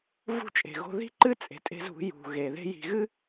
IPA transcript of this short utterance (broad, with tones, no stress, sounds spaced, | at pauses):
v ṳ˦ t͡ʃʼ e̤˨ ɣ o̤˦ ð i̤˦ ǃ ɨ˦ t͡sʼ e̤˨ tʼ e̤˦ z ṳ˨˦ j ṳ˨ ɣ e˨ ð e̤˦ j i̤˨ ɣ ɨ˦